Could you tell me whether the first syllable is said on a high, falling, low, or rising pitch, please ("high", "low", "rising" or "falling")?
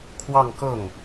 falling